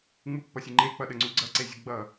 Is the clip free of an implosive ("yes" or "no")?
no